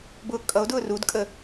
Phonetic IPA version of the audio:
b ʊː kʼ ʌ o̯ d ʊː r u d kʼ ə

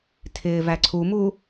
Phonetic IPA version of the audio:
tʰ ɪː v æ ǀʰ u m u

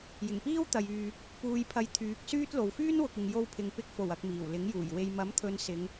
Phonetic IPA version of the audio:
j ɪ˨˩ ŋ p iː˥ w t̪ ɐ˨ j yː˨ | p uː˧ j pʰ ɐ˧ j t̪ʰ yː˨˥ k̚ s yː˥ t̚ l o˨ w f yː˥ n w ʊ˨ k̚ ɪ˨ ŋ j o˧ w pʰ ɪ˨ ŋ p ɪ˧ k̚ f o˨˩ w ɐ˧ k̚ m iː˨˩ w l ɪ˨˥ ŋ j uː˨˩ j w e˨ j m ɐ˨˥ m t̪ʰ ɵ˨˧ n s ɪ˨˧ ŋ

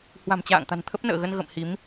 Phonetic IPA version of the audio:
h w a̤˨˩ m t͡ɕ a̰ː˧˨ ŋ t̪ a̤˨˩ n t̪ʰ ə˦˥ p̚ n ə̰ː˧˨ ɣ ə˧ n ɣ ə̰˧˨ m h i˨˦ m

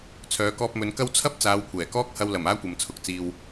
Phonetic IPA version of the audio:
t͡sʰ œː˨˧ k ɔː˧ p̚ m ɵ˨˧ n k ɐ˥ w t͡sʰ ɐ˥ p̚ t͡s aː˨˧ w kʷʰ ɛː˨˩ k ɔː˥ k̚ h ɐ˧ w l ɐ˨˩ m aː˥ kʷ ɐ˨ m t͡sʰ ʊ˨ k̚ t͡s iː˨ w

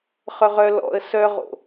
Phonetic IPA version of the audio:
χ œ ʁ œ l ɔ̰ ə̯ s œ ʁ o̰

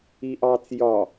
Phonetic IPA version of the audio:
i ʔ ɑ t͡s j ɒ

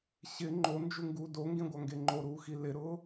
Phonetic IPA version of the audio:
ɕ ɪ ŋ͡ǃ o n d͡ʒ u ŋ ɡ uː d o ŋ ɡ ẽ ɡʷ a ŋ ɡ e ŋ͡ǃ o ɾ uː x i l ɪ ɾ ʊː

